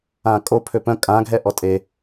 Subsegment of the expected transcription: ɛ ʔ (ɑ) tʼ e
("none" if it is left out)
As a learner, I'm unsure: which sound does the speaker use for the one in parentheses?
ɔ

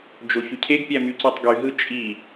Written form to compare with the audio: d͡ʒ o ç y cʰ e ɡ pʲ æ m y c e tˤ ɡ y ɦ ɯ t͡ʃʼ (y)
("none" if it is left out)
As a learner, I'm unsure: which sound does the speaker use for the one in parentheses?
i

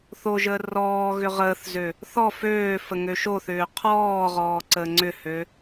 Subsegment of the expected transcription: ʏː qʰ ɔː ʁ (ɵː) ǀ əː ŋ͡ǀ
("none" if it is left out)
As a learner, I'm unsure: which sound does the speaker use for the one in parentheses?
ɔː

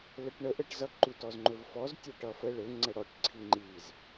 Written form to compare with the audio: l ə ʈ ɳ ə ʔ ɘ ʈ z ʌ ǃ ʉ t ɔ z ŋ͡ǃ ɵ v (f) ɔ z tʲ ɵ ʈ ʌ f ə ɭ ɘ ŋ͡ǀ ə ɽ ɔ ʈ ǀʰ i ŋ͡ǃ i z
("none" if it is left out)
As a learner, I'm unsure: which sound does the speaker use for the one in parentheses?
f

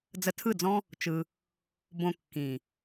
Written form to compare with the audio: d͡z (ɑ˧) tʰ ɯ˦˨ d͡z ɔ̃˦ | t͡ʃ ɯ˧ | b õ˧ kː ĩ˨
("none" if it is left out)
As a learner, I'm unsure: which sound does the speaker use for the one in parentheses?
ə˧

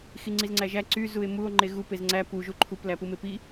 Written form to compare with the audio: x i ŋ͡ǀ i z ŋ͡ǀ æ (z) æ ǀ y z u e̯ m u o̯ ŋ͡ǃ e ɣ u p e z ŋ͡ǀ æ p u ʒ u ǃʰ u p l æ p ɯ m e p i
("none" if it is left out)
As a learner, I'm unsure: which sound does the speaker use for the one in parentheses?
ʒ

